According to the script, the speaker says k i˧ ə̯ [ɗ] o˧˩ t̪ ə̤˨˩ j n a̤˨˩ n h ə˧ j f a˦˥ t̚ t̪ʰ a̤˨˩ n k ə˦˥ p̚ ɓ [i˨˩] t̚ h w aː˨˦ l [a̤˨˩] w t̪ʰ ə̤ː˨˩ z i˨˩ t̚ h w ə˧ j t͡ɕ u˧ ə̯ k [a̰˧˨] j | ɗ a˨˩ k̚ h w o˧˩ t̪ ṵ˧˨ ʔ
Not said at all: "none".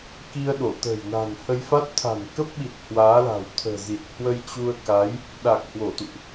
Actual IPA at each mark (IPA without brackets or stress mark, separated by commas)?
ɗ, i˨˩, a̤˨˩, a˨˦